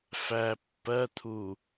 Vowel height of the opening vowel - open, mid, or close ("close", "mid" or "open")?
open